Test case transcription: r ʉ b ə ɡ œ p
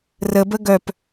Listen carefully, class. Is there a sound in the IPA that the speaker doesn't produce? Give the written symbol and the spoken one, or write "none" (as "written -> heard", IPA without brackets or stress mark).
ʉ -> ə